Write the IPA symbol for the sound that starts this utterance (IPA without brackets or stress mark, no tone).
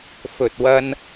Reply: f